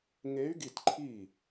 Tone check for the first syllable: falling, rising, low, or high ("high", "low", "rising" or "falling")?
rising